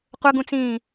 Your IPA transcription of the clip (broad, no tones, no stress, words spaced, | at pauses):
qʷəɡũt͡sĩː